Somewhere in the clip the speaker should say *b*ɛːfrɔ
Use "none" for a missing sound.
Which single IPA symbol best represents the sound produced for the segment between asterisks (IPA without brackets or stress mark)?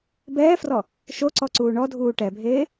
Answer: b